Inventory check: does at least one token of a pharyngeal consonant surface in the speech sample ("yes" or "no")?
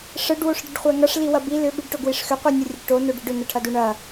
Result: no